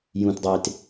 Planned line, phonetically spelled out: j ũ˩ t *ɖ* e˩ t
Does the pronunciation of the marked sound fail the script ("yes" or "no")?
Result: yes